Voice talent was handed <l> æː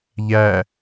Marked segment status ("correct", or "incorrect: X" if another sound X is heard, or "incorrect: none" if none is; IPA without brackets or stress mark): incorrect: ʎ